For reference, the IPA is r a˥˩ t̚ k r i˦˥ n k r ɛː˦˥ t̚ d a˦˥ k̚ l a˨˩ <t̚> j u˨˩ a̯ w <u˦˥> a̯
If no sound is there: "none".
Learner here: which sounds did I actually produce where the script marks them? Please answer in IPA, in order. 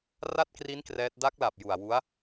p̚, u˦˥

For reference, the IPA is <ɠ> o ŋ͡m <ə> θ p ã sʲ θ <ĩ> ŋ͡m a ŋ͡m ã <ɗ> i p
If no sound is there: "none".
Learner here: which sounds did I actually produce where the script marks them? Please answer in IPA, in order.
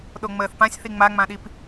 ɗ, əː, i, ɗ

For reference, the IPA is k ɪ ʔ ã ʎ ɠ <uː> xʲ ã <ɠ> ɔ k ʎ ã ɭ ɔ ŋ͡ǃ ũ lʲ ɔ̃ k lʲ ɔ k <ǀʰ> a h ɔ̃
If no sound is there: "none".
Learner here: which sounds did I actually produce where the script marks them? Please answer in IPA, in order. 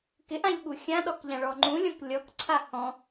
u, ɗ, ǀʰ

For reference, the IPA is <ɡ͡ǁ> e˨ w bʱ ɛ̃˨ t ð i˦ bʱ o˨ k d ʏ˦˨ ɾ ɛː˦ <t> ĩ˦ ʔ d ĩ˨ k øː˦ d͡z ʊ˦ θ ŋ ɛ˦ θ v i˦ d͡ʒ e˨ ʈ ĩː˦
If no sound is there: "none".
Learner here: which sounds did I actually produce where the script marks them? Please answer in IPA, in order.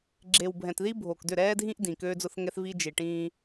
ɡ͡ǁ, dʱ

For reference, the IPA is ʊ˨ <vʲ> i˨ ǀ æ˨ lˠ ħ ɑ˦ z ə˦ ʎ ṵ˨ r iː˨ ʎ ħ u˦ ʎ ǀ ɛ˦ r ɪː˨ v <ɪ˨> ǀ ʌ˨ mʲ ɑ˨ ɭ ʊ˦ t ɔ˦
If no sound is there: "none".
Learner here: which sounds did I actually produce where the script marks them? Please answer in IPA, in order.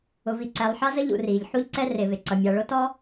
v, ɪ˨

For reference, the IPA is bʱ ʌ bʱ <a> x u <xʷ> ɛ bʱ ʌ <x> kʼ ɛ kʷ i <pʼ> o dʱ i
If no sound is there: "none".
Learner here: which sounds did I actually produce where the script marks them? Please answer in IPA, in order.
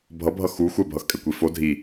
ʌ, xʷ, x, f

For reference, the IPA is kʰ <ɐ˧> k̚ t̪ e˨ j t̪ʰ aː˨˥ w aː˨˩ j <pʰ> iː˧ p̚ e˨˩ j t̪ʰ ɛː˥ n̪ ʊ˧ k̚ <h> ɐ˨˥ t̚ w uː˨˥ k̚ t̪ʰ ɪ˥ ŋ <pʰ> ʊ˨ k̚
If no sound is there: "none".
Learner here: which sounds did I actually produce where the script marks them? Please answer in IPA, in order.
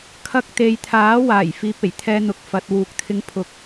ɐ˧, f, f, pʰ

